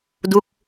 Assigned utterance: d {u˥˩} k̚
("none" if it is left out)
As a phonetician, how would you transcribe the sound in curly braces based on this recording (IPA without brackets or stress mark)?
u˥˩